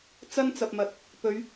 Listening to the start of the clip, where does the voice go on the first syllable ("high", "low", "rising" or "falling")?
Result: high